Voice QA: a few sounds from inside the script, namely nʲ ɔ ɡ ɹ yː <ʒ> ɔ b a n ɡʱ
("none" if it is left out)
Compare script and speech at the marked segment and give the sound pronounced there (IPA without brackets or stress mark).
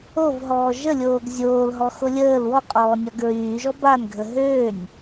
ʒ